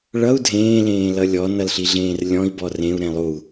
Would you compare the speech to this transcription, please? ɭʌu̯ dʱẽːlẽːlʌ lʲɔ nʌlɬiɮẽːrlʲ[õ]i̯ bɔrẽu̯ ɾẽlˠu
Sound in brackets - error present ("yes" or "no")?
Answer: yes